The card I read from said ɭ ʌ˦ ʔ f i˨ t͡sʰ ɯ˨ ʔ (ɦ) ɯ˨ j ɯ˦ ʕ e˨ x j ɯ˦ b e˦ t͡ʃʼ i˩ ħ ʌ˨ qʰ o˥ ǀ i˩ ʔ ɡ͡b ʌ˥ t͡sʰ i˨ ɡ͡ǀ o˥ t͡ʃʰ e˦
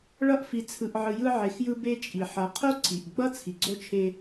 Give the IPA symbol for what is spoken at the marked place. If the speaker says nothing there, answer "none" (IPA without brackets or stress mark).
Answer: ʕ